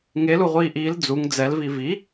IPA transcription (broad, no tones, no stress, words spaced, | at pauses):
ŋeluʁʷiː ʔiːl d͡zuŋ d͡zɛlvi vi